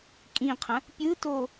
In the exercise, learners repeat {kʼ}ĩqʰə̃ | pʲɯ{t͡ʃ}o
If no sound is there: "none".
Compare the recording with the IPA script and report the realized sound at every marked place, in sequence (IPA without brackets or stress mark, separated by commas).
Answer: kʼ, t